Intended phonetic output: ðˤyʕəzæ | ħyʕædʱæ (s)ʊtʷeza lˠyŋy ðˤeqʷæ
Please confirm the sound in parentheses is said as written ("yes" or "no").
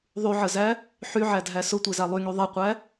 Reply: yes